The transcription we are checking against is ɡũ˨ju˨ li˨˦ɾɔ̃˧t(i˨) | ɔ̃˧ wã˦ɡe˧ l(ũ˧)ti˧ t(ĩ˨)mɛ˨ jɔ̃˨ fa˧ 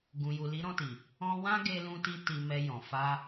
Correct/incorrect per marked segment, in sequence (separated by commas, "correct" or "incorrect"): correct, correct, incorrect